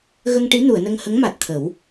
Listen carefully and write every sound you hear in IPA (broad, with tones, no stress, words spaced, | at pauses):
ɣə˧ŋʈi˧˥nu˨˩˨ə̯nə˧ŋ hə˧˥ŋma˨˩t̚t̪ʰə˨˩˦w